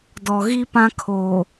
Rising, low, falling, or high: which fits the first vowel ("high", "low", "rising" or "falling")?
low